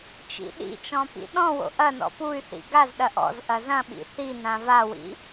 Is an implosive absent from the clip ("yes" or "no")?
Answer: no